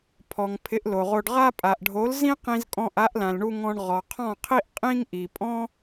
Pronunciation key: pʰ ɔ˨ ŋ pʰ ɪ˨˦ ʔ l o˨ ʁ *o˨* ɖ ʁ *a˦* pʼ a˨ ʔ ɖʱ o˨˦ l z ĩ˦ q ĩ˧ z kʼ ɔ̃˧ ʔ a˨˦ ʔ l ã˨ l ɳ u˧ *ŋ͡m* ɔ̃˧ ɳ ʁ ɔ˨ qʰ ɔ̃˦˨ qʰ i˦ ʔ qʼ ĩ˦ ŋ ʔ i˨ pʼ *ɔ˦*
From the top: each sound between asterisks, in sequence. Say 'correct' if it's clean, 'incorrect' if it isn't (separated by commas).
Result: incorrect, correct, incorrect, incorrect